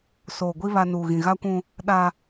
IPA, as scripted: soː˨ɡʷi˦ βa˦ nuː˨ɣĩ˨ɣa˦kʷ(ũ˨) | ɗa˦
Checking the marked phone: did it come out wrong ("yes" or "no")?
yes